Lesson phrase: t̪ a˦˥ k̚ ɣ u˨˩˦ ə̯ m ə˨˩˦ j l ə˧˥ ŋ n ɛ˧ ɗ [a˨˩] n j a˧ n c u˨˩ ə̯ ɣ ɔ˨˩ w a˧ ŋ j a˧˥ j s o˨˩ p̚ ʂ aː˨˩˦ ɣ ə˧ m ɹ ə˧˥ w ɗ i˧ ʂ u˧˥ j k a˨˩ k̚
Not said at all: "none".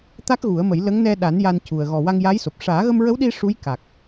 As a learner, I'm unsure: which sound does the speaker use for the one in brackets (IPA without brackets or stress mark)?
a˨˩˦